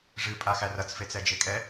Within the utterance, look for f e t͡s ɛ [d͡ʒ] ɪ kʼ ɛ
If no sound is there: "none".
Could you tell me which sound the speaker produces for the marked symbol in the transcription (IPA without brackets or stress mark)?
d͡ʒ